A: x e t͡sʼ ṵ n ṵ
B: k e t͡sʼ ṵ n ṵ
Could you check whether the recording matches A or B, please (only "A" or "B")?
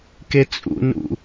B